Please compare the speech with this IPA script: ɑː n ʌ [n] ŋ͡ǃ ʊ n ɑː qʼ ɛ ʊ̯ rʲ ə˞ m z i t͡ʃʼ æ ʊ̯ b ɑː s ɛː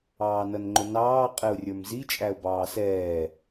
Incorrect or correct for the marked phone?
correct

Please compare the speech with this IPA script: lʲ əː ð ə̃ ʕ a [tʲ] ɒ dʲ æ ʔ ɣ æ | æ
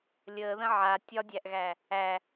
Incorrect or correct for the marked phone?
correct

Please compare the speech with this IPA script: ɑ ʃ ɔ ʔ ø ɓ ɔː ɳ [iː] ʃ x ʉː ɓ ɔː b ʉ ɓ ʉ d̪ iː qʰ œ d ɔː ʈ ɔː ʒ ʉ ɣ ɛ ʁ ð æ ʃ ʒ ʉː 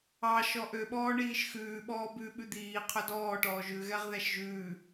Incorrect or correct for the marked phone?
correct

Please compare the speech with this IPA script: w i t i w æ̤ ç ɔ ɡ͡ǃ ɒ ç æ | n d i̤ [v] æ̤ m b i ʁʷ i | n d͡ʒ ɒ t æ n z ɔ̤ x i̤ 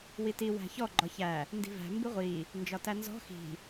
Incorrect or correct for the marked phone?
correct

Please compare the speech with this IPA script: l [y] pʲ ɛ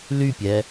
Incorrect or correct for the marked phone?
correct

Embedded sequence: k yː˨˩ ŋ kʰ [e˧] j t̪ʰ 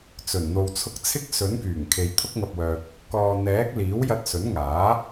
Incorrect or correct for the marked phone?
incorrect: e˨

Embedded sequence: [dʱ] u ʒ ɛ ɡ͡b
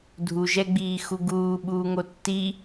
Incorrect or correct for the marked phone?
correct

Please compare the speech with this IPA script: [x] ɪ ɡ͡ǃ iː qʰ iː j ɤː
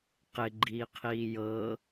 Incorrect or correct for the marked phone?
incorrect: q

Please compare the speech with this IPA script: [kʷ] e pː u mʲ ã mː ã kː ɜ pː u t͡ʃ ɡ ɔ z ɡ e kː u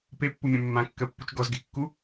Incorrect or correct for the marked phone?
incorrect: p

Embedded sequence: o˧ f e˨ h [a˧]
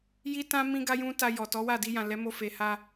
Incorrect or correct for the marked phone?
correct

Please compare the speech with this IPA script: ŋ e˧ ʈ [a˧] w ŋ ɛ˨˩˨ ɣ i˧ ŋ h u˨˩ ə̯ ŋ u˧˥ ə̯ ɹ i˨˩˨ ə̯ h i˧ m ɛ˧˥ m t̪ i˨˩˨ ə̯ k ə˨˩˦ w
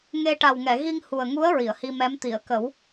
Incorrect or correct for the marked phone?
incorrect: a˨˩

